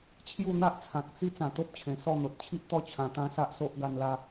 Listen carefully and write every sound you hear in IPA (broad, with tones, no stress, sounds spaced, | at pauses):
t͡ɕʰ j u˥˧ n̪ a˦ ʔ t͡sʰ ã˨ k̚ t͡s i˦ t͡s ã˨˩ t̪ o˦ p̚ t͡ɕʰ ẽ˨˩ s ɔ˥˧ n̪ o˨ t̚ t͡ɕʰ i˦ ʔ t̪ ɔ˦ t͡ɕʰ ã˧ t̪ ã˦ s a˦ ʔ s o˦ ʔ ɡ a˧ n l a˧